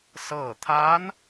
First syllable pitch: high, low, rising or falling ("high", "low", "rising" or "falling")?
falling